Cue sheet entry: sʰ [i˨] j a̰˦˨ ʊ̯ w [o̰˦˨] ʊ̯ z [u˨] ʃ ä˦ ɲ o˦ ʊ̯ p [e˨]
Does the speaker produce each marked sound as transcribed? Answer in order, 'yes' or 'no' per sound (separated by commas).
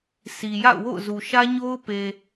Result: yes, yes, yes, yes